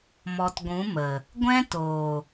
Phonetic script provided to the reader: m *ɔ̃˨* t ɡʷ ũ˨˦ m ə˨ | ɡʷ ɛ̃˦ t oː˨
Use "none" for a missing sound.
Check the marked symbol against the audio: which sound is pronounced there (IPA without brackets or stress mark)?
ɔ˨